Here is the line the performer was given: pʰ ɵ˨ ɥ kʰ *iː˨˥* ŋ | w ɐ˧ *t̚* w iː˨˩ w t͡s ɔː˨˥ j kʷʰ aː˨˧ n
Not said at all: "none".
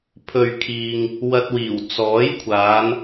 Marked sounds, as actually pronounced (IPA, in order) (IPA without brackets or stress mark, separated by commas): iː˧, t̚